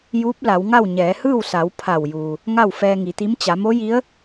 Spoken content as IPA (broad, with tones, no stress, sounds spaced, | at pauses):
j uː˧˥ p̚ l a˩˧ w ŋ a˥˨ w ɲ ɛː˩˧ h ɯː˥˨ w s a˩˧ w pʰ a˧˩ w j uː˩ | ŋ a˥˨ w f ɛː˧ ŋ i˩˧ t̪ i˧˥ m t͡ɕ a˩˧ m o˧˥ j i˧˥ ə̯